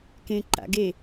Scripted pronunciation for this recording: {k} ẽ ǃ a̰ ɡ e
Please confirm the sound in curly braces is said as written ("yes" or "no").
yes